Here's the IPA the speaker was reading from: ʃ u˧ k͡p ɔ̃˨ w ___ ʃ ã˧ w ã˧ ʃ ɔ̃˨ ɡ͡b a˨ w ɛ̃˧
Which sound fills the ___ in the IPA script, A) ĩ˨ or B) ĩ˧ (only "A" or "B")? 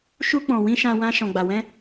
B